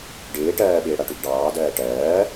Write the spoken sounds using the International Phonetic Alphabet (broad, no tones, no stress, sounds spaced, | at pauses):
ɖ ɪː ʈ ɜː ɓ ɪː ɽ a ʈ ʉ ɡ ɖ ɑː d ɜː ʈ ɜː